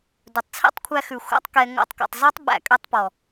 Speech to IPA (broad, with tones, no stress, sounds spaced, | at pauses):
d ɵ˨ tˤ t͡sʰ ḛ˦ tˤ kʷʰ æ˧ x ʉ˨ xʷ æ̰˦ tˤ k ɛ˧ ŋ o̰˧ tˤ k o̰˨ tˤ z ɔ˦ tˤ ɓ æ̰˨ kʼ ø˧ tˤ p ɔ˨